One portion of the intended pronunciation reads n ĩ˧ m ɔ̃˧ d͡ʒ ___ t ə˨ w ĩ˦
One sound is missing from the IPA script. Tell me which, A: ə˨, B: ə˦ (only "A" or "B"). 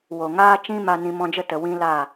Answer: B